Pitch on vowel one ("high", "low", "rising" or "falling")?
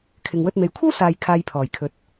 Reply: low